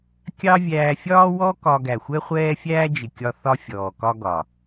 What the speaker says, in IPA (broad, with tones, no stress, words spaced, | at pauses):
kʲɑ˦ vʲæː˧fʲɒː˦wɔ˦ kɒ˧ ɡæ˨xʷɛ˦χʷɛː˦ fʲæː˦d͡ʒɪ˨kʲɒ˧ θɒ˦fʲɔː˨kɒ˦ɡɒ˨